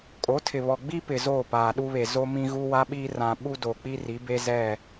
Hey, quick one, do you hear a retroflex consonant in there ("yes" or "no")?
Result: no